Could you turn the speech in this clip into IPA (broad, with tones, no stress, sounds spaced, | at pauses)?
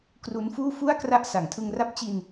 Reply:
k r u˦˥ n f uː˥˩ f u˥˩ a̯ k r a˦˥ ʔ s a˩˦ ŋ tʰ ɯ˧ ŋ r a˦˥ p̚ t͡ɕ i˧ n